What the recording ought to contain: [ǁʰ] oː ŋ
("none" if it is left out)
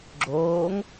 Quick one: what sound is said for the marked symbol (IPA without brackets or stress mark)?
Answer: ɡ͡ǁ